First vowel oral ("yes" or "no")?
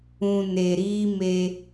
no